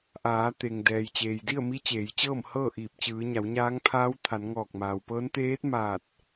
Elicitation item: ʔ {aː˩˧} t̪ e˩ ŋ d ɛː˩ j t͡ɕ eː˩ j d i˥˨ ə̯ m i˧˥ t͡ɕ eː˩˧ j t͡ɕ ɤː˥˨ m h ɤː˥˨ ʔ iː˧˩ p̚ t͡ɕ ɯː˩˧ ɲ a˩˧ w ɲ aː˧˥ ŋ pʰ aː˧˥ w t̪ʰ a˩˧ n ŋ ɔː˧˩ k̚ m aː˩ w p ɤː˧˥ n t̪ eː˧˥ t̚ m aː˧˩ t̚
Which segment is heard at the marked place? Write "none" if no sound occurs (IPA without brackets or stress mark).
aː˩˧